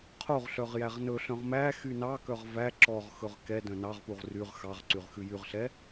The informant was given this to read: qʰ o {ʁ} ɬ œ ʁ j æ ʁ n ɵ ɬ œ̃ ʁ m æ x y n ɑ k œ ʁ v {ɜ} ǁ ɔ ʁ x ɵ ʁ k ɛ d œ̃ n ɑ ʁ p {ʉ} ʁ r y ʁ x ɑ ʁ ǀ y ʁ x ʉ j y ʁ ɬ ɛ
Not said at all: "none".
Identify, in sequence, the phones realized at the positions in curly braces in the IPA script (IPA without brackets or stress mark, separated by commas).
ʁ, æ, u